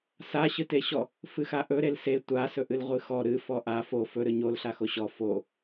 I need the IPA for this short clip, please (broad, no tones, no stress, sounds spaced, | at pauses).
s a ɕ ɨ t e ɕ ɔ | f ɨ x a ʔ ɵ ɾ e l s e tʷ a s ɵ ʔ ɨ l ʁʷ ɨ x ɔ ɾ ɨ f ɔ ʔ a f o f ɵ ɾ ɨ ɲ o l ɬ a x o ɕ ɔ f o